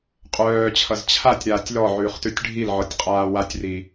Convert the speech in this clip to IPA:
qʼ œː t͡ɕʰ ʌ z t͡ɕʰ a tʲ ɾ aː tʲ l ɔ ʕ ʉː χ t ʉ tʲ ɖʱ i l ʕ ɔ tʲ qʼ aː w a tʲ r i

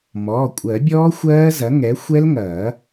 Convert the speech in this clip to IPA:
m ɔː˩˧˩ kʷʼ ɜ˨˩˦ bʲ ɔː˦˥ xʷ ɜː˦˥ z ɐ˩˥ ŋ ɛ˩˥ xʷ ɛ˦˥ l ŋ ɐː˨˩˦

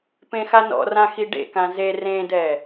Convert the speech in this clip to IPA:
p ẽ x a n ɔ̰ r ã x i ɖ ḛ k ã z e r ẽ d ɛ

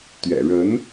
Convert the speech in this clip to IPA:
t̪ ɥ ɛ̰˨˩ ɻ ə˧˥ n

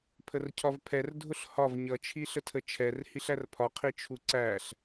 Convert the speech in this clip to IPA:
pʰ ə r cʰ ɒ v pʰ ɛ r dʱ ʊ ɬ h ɒ v ɲ ʌ t͡ʃʰ i ɬ ə tʰ ə t͡ʃʰ ɛ r h i ɬ æ r pʰ ɒ qʰ i t͡ʃʰ u ǀ æ ɬ

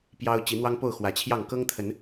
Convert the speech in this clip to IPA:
p j ɑ˦ ʊ̯ t͡ɕ i˨˦ n̪ w ɑ˦ ŋ p o˥˨ ʊ̯ x w ä˨˩ t͡ɕʰ j ɑ˥˨ ŋ k ɤ˦ ŋ t̪ʰ ə˨˦ n

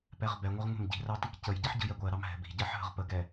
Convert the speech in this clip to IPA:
p ɛ ʁ b ɛ ŋʷ ə ʁ ŋʷ ɛ̤ m ɟ i̤ r ɑ t i k c ə j ɟ ɛ ħ ɟ ə̤ j ɛ ɡʷ ɜ ɾ ɑ m ɦ ɛ̤ b i̤ ɟ ɜ ħ ɦ ə̤ ʁ p ə ɡ ɛ

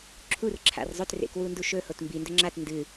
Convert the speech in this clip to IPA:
ǁʰ u r ǁʰ a̰ r zˤ ɵ t r ḛ k w u n d u ʃ ɵ h o t m b i n d ɵ ŋ͡ǁ a t n d ɨ

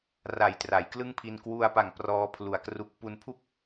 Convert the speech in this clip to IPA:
r a˨˩ j t r a˩˦ j k l ɯ˥˩ ŋ pʰ i˧ n k w u˧ a̯ p a˨˩ ŋ p r ɔː˦˥ pʰ l u˨˩ a̯ k r u˦˥ k̚ p u˧ n pʰ u˥˩ k̚

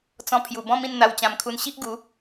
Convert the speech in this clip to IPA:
t͡s ɔ̃˧ pʰ j u˨˩ b ɔ̃˦ m ĩ˥˧ n n̪ a˧ w t͡ɕ ã˧ m kʰ u˧ n ɕ i˦ ʔ ɡ u˨˦

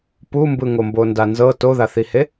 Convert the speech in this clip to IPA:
p u m b ɯ ŋ o m b o n d a n z ɤ t o ð a θ i h e

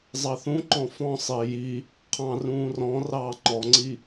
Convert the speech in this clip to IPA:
zˤ ɑ θ ũ ǃ ɔ̃ f ɔ̃ sˤ ɪː j i | qʰ ɑ̃ r ũː r ɔ̃ r ɑː ŋ͡ǃ ɔ ŋ͡ǀ i

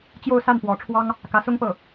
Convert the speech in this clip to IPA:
t͡ɕ j o˥˧ ʊ̯ s a˥˩ n p w ɔ˧˥ ʈ͡ʂʰ w ɑ˥ ŋ | k ä˧˥ s ʊ˥ ŋ p ɤ˥˩

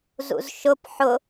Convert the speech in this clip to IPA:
z ṵ z ʃ ʊ p ħ ʊ

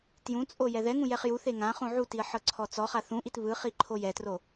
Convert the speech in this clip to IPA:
t j ũ t͡sʼ o j ɛ ð ɛ ŋ ũ j ɛ χ j u θ e ŋ ã χ ũ ʕ u t i ə̯ ħ ɤ ǀʰ ɔ t͡s ɔ χ a θ ũ ʔ i t β ɯ χ i ǃʰ o j ɛ t r o

